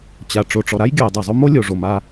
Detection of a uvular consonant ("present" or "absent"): absent